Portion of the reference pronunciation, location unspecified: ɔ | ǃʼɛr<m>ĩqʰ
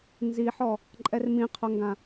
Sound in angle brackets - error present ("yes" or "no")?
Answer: no